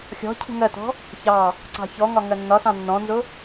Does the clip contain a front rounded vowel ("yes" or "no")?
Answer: no